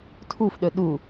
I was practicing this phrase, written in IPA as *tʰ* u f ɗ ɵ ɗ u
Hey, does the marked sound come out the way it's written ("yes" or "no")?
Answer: yes